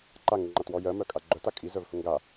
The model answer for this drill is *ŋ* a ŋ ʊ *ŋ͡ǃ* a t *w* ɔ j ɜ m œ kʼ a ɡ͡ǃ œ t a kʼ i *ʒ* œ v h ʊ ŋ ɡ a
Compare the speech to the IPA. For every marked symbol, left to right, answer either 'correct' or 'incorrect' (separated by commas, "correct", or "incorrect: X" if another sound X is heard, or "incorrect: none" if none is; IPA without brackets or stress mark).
incorrect: ǃ, correct, correct, incorrect: z